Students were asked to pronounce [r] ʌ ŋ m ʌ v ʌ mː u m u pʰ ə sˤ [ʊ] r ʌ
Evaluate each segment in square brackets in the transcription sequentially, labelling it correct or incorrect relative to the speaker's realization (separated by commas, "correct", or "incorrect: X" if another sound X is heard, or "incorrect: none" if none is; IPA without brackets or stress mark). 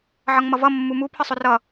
incorrect: ʕ, correct